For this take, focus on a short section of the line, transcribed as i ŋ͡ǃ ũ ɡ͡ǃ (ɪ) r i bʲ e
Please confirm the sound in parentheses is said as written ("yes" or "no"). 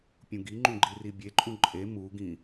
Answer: no